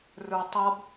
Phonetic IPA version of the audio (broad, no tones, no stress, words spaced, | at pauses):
rə˞tˤʌb